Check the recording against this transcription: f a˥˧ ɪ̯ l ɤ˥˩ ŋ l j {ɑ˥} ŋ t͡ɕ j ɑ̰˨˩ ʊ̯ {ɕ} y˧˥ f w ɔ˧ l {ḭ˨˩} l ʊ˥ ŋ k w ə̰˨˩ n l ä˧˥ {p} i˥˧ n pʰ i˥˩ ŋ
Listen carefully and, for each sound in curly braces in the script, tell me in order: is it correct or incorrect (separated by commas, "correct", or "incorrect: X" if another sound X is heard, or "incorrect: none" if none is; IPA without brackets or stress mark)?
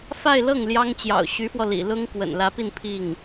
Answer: correct, correct, correct, correct